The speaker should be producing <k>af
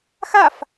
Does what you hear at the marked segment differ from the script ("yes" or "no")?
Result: yes